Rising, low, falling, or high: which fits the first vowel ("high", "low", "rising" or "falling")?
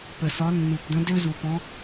low